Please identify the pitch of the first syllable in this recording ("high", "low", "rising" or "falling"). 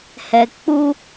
low